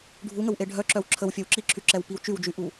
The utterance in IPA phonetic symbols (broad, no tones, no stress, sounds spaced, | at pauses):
ɖʱ u ŋ ə w ʔ e ɖʱ œ ǁ œ w ǁʰ ə w fʲ ɛ w ǁ i ǁʰ y ǁ ɛ w p i w t͡ʃ y w d͡ʒ y ʔ u